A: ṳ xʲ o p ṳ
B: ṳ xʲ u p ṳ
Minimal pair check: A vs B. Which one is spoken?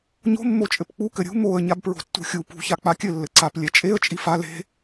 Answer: B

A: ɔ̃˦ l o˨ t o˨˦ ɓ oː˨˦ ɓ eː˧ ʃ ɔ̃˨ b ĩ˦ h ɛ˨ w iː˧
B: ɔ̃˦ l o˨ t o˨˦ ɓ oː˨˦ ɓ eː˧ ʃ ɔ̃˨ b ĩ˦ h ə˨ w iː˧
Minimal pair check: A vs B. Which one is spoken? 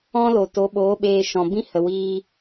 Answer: B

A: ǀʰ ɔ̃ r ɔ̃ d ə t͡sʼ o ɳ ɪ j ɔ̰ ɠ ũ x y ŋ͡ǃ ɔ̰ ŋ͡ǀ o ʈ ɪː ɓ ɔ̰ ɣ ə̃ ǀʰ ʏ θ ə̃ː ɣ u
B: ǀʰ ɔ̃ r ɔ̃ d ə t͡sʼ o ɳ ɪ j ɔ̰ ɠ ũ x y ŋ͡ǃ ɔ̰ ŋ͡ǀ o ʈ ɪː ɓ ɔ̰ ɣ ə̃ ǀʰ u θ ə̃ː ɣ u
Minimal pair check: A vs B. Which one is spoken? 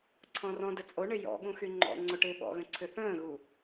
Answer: A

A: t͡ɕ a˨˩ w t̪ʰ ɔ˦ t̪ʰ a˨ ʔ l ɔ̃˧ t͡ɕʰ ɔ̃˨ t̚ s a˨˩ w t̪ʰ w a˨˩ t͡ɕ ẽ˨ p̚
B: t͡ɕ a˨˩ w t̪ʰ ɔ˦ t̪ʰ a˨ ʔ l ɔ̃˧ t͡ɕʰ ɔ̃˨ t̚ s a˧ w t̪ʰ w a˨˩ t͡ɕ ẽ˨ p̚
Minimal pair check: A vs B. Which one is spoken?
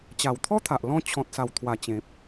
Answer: A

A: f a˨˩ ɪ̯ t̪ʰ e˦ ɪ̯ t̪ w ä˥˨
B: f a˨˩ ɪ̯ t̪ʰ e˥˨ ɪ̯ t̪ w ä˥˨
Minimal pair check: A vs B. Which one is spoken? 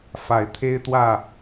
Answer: A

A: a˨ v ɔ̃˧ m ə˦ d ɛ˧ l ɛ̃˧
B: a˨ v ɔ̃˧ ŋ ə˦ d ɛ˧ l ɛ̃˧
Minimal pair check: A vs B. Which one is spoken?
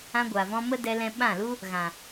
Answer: A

